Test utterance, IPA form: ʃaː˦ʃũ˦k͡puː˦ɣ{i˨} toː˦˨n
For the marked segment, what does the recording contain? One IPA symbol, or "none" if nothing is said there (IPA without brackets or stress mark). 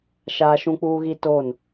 i˦